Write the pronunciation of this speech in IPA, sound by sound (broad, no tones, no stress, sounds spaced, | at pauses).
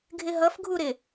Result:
ɡʱ ɪ ɦ ʌ f ɡʱ u ɾ ɪ